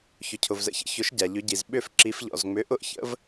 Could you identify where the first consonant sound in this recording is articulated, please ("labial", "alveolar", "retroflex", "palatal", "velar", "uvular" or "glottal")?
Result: palatal